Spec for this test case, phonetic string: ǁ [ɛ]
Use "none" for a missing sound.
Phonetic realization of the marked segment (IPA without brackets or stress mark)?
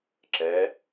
ɛ